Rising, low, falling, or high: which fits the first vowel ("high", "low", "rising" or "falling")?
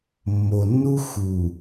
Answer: low